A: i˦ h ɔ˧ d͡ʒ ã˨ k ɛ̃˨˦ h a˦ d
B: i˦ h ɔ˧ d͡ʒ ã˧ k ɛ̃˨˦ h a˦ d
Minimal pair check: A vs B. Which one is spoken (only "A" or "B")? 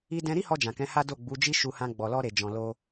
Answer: A